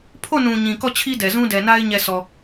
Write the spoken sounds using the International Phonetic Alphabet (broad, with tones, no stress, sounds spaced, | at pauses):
pʰ o˦˨ n ũ˨ ɲ ĩ˨ k ɔ˦˨ t͡ɕʰ i˦ d ɛ˨ z ũ˦ d ɛ˨ n a˦ ɪ̯ ɲ ɛ˦˨ sʰ ɔ˨